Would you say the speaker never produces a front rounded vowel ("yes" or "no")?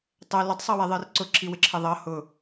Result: yes